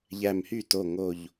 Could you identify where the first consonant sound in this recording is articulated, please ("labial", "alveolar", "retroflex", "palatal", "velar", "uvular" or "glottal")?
palatal